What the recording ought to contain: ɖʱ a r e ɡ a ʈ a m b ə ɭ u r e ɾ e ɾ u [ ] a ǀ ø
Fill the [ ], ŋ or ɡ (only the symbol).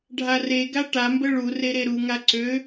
ŋ